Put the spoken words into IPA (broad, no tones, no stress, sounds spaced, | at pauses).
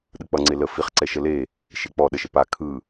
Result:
ɗ ɯ k͡p ʌ ŋ͡ǀ e l ə f i χ ǀ ɛ ʃ ə l e | ʃ e k͡p ɔ ɗ ə ʃ ə p a kʰ ɯ